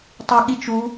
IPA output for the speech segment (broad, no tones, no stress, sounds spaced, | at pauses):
tˤ o ɠ i t͡ʃ u